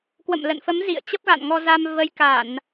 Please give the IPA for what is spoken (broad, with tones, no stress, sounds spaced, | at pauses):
k w ə̰˧˨ m l ə̰˧˨ n f ə˨˦ m z ḭ˧˨ ə̯ t͡ɕ ə˦˥ p̚ ɣ a̰˧˨ n ŋ ɔ˧ z a˧ m v ə˨˦ j k a˧˩˨ n